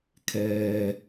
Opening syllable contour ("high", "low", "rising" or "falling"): low